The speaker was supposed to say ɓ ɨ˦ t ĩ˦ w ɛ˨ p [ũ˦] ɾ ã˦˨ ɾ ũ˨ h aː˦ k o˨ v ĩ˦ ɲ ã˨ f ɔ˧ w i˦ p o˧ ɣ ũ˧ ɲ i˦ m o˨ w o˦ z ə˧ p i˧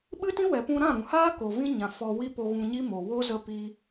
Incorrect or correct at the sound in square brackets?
incorrect: ũ˧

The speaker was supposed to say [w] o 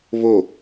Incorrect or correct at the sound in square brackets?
incorrect: β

